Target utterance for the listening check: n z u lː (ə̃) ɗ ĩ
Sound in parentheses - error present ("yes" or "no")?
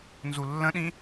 no